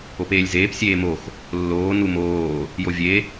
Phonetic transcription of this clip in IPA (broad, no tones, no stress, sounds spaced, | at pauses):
o p eː lʲ z eː p sʲ eː m o x | lː oː n u m oː | j o vʲ e